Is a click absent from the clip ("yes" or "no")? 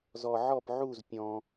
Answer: yes